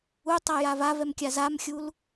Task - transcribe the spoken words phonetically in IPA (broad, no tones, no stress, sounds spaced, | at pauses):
u tˤ a j a v a v ɛ m kʲ a z a m xʲ u l